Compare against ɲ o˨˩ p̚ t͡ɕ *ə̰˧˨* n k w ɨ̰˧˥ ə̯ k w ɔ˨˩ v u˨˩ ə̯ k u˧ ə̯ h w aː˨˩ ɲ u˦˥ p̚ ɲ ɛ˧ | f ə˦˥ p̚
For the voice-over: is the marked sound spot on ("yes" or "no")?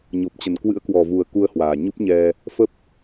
no